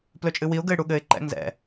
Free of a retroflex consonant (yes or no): no